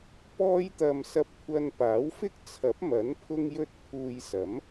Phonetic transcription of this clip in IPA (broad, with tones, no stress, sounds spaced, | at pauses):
p ɔː˥ j t̪ ɐ˧ m s ɐ˧ p̚ kʷʰ ɐ˧ n p aː˨˥ w f ɪ˥ k̚ t͡sʰ ɐ˨˥ p̚ m ɐ˨˥ n pʰ ʊ˥ ŋ j ɵ˥ t̚ pʰ uː˧ j s ɐ˨˥ m